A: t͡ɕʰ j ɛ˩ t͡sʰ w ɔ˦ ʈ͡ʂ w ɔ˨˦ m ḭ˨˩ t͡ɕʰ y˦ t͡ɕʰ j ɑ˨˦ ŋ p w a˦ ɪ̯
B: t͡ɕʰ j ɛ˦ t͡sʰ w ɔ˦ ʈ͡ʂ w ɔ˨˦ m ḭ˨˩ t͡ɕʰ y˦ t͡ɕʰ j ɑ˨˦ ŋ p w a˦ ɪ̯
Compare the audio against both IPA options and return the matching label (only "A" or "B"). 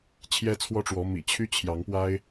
B